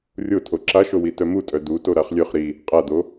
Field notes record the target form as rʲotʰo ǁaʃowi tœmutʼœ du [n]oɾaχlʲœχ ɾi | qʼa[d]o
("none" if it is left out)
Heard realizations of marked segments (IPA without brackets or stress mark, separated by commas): t, d